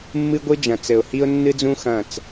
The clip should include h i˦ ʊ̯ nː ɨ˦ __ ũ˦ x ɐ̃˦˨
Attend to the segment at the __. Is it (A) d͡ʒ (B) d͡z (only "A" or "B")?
B